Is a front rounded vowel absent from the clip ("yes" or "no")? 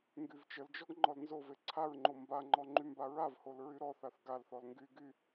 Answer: no